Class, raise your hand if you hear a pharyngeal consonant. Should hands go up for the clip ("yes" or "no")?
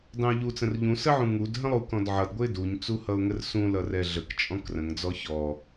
yes